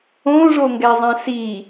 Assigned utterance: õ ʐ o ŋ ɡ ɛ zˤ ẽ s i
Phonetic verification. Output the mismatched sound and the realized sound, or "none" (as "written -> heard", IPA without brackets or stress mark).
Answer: ẽ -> ɛ̃